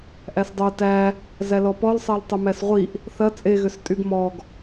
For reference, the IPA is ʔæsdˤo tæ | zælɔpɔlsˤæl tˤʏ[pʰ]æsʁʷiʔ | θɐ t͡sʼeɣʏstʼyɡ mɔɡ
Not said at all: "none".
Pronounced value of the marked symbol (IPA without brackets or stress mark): m